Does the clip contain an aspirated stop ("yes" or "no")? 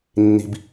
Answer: no